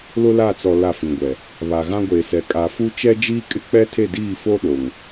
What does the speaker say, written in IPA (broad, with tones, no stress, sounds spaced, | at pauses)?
l ʊ˦ l a˦˨ t͡s ɔ˨ l a˦˨ f ĩ˨ ɡʷ ɛ˨ | β a˨ ɣ ã˦ ɡʷ eː˨ s ɛ˨ kʼ a˨ f u˦ t͡ʃ ɛ˦ d͡ʒ iː˦ kʼ ɪ˦ k͡p ɛ˦ tʰ e˦˨ d iː˦˨ f o˦ ɗ o˨ ŋ